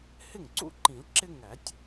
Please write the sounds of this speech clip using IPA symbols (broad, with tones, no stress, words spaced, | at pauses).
hɪ˥˩ŋǀṵ˥˩ǃĩ˨˩˦l ǁɪ˦ ŋæ˨˩˦tʲ